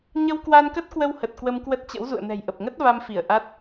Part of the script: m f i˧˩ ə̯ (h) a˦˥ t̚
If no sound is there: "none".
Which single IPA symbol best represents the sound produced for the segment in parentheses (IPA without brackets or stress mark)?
ʔ